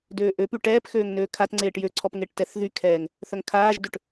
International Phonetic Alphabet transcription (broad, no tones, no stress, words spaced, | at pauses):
døːʔøpy ʈɛːpxøːŋ nøːkʰatŋ͡ǀeːʈ jøǀʰɔp ŋeʈtɛθðykʰɛːŋ | θœŋkʰaːʒdøʈ